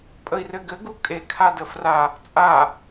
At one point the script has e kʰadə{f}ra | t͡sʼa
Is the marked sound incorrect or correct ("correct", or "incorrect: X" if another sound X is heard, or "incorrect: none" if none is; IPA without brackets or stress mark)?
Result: correct